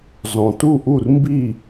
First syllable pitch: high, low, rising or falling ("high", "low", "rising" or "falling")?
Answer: low